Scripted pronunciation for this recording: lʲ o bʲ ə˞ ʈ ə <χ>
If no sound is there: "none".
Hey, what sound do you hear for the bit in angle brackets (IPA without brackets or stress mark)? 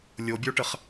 χ